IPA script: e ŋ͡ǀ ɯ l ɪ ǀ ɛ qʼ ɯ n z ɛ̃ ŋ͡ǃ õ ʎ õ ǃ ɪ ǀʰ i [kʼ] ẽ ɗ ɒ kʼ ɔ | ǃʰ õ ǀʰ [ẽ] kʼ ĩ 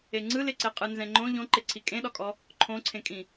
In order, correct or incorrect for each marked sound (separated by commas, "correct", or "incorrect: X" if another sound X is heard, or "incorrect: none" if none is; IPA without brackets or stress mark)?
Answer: correct, correct